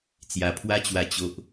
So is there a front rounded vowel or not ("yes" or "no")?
no